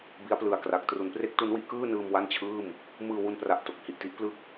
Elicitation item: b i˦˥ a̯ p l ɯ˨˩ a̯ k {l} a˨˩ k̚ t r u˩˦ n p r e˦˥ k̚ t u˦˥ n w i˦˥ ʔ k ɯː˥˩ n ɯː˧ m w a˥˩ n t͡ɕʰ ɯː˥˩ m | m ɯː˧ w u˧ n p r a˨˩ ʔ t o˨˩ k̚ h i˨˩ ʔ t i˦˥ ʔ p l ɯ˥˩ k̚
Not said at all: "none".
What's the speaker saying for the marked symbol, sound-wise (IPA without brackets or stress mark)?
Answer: r